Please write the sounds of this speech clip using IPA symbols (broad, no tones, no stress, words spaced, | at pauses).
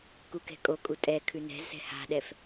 kukɛ̤kʼokʼu tʼɛkʰʉ nɛ̤zsɛ̤ ha̤ɗɛf